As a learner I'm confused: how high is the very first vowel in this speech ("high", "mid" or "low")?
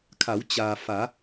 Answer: low